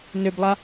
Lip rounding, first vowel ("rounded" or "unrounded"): rounded